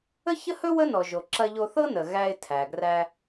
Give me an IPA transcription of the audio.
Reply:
ə˥çə˥hɵ˥ wə˥nɔ˩ʒo˩ ǁɐ˧ʎo˧θɤ˥nə˩ ɣæ˧ɪ̯ tʰæ˩ɡræ˧

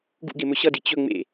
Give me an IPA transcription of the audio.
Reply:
ɡṵɡemɵ ɕʌdi t͡ɕɵ ŋ͡mḛ

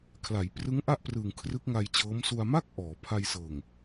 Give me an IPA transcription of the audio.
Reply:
kʰla˩˦jprɯ˦˥ŋʔa˥˩ʔ prɯ˨˩ŋ kʰrɯ˦˥k̚ŋa˧jt͡ɕɤː˦˥m su˧a̯ma˥˩k̚ ʔɔː˩˦pʰa˧jsɤː˨˩ŋ

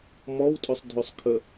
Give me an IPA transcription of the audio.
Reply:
mɔwtʼʉsˤ dʱʉsˤkʰə

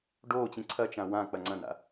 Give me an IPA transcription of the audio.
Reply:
ɖoːt͡ɕĩ ǀʰɐt͡ʃã wã k͡pɐŋ͡ǀɐ̃na̰

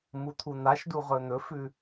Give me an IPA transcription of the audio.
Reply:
mut̪ʰun̪aʃdu ʁɵn̪ɵfʉ

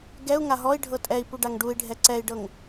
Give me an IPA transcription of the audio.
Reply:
ɡɛu̯ŋa ɦɔi̯ ɖʱɤtʼɛi̯pu ɖaŋɖui̯ɖʱɛ ǀɛi̯ɖɤŋ

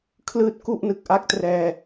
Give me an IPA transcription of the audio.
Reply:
kʰlɯː˥˩t̚ku˥˩ʔnɯ˨˩k̚ ʔa˥˩k̚trɛː˧

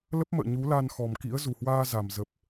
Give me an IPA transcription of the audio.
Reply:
lə˦˥p̚mə̰ː˧˨ ɲu˨˦la˧n xɔ˨˩mkḭ˧˥ə̯ zu˨˩hwaː˧ za˨˩m zə˨˩p̚

